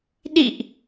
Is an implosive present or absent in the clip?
present